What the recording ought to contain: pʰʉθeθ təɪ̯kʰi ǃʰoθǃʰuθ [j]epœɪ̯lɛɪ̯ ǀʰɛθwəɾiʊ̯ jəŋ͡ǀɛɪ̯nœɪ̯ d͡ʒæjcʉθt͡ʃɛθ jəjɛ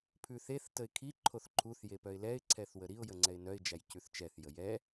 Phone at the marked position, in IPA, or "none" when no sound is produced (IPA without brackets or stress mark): j